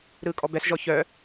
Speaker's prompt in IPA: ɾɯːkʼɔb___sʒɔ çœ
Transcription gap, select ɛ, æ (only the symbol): ɛ